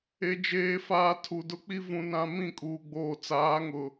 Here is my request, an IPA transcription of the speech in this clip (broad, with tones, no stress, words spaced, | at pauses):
e˨d͡ʒeː˨faː˨ tʰu˨dʊ˦k͡pi˦ vũ˨nã˨ mĩ˦˨kʼuː˨ ɡ͡boː˨t͡saː˨˦ ŋʊ˨